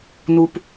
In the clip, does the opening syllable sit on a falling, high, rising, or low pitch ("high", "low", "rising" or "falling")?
low